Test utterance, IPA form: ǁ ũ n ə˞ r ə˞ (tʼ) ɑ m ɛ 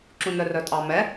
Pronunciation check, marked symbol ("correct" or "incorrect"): correct